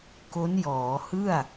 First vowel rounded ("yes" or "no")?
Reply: yes